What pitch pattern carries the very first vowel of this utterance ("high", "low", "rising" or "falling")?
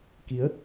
rising